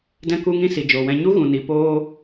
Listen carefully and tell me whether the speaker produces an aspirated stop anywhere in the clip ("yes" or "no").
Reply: no